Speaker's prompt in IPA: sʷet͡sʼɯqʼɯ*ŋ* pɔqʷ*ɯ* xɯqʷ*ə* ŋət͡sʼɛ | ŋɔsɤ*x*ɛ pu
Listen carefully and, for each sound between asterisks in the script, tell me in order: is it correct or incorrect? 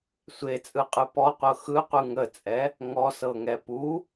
incorrect: none, incorrect: ɤ, incorrect: ɯ, incorrect: ŋ

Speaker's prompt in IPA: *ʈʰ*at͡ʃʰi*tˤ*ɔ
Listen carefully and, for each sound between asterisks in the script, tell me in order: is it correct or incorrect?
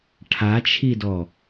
correct, incorrect: d

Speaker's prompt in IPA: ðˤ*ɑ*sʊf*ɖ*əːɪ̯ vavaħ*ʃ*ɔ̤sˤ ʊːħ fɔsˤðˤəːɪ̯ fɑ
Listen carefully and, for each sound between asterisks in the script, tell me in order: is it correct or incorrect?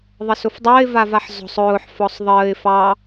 incorrect: ə, incorrect: dˤ, incorrect: z

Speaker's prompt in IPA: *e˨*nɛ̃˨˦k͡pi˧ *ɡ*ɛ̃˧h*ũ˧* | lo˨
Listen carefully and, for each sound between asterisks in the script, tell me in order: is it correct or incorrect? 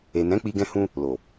correct, correct, correct

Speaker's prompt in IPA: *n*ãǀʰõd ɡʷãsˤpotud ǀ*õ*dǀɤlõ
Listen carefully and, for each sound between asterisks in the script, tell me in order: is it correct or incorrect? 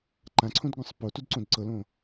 incorrect: ǃ, correct

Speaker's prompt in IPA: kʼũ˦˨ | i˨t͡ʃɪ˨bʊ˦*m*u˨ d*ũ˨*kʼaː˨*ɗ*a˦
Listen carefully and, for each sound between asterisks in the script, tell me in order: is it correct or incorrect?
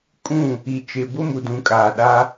correct, correct, correct

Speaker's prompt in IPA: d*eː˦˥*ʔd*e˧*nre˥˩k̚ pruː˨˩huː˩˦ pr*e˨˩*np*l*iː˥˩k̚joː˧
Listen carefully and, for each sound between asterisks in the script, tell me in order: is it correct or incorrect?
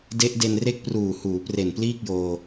incorrect: e˦˥, correct, correct, correct

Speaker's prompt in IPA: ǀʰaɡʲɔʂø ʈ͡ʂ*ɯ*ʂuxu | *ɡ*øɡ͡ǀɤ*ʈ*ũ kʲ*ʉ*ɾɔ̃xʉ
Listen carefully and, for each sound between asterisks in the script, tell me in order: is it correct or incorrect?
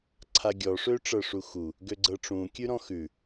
incorrect: ɤ, correct, incorrect: ʈ͡ʂ, correct

